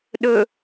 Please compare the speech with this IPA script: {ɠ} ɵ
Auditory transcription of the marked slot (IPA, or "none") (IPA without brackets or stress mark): ɗ